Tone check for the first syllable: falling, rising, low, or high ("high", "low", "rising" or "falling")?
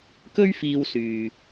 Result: high